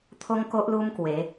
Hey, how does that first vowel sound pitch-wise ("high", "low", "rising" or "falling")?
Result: high